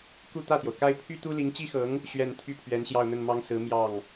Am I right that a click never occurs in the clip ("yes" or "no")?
yes